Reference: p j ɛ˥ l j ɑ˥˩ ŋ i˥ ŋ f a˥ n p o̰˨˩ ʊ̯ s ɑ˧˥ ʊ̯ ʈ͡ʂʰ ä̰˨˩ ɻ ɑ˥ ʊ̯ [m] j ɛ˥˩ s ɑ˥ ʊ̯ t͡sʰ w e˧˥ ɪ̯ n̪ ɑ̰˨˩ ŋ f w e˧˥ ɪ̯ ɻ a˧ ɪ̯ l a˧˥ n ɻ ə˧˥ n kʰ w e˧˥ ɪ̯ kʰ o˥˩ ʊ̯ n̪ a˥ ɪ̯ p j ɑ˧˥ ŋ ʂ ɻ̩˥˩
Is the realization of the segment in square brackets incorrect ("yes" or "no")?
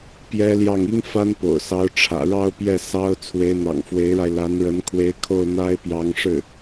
yes